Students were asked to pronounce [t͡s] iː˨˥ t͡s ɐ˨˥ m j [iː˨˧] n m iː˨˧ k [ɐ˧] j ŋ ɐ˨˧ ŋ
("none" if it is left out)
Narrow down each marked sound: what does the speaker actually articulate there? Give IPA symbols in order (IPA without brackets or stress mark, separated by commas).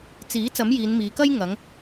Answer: t͡s, iː˨˧, ɐ˥